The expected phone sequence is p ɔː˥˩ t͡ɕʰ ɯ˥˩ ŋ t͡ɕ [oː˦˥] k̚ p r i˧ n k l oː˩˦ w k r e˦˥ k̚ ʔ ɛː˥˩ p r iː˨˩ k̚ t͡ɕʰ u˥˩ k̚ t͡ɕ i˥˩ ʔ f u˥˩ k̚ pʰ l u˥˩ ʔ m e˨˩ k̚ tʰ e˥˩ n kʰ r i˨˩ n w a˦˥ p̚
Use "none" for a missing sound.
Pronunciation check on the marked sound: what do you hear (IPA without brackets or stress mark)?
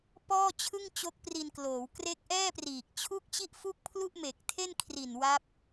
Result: o˦˥